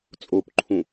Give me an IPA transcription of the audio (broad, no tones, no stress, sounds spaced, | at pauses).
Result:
t͡sʼ o p ǃʰ ũ